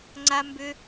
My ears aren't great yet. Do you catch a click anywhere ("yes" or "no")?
yes